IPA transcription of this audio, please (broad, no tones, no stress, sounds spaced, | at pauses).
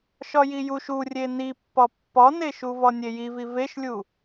ʃ ɒ j i j u ʃ u rʲ e n i pː ɒ pː ɒ n e ʃ u v ɒ nʲ e j i v i v e ʃ lʲ u